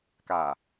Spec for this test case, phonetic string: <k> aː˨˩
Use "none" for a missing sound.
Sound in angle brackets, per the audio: k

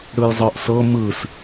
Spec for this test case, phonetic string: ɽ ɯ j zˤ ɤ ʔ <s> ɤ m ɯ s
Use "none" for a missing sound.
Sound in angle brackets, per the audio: s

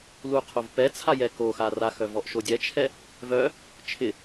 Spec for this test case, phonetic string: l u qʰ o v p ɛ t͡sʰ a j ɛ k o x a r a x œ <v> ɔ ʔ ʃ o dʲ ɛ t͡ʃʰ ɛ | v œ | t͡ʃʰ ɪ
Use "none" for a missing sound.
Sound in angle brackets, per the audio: v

